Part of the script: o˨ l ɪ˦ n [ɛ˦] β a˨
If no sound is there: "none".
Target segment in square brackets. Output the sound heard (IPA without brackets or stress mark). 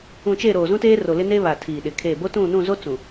e˦